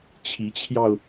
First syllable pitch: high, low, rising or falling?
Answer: rising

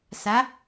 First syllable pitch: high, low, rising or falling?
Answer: rising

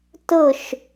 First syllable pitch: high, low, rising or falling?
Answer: falling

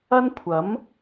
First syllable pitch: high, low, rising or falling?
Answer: high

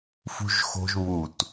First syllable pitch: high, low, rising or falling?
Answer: high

